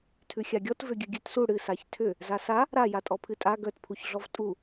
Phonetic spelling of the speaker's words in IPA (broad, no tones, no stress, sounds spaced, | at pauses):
tʰ ʉ xʲ a ɡʲ ɔ t v ʏ ɡʲ ɨ ɡʲ ʉ t s u ɽ ɨ s a ç tʰ ʏ | z a s a | ɾ a j a tʼ ɔ pʰ ɨ tʼ a ɡ œ t pʰ u ç ɮ ɔ v tʼ u